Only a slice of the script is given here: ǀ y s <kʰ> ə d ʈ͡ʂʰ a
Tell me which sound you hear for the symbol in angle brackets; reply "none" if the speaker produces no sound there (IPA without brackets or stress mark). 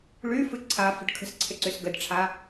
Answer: ɡ